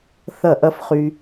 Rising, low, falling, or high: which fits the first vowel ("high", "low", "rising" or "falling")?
falling